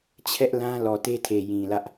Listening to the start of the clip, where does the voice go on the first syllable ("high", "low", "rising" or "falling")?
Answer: high